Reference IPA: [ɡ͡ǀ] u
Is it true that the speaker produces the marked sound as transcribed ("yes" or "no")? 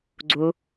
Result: yes